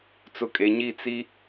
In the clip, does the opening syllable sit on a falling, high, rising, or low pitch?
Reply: low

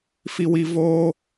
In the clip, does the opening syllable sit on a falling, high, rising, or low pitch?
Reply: high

